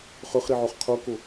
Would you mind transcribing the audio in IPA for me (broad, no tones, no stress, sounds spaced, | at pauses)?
χ ø χ ɾ i ʕ o χ qʰ o k o